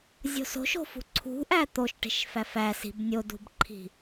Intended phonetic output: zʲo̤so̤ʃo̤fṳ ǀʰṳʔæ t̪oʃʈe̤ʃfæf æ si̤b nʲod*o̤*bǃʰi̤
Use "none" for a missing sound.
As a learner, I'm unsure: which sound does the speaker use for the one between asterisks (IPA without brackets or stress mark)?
ṳ